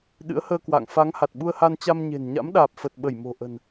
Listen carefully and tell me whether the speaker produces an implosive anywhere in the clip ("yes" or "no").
yes